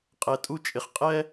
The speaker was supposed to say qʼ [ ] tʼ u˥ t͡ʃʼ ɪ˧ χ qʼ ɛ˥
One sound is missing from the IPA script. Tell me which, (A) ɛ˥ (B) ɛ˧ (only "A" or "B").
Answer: B